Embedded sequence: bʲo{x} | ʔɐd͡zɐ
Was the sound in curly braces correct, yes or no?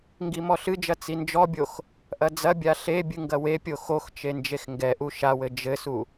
yes